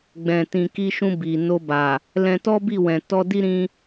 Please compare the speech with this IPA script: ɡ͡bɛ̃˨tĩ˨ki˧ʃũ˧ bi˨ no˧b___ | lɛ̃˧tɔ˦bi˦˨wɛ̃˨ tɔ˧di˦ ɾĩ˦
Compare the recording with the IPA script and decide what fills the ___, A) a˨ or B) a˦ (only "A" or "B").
A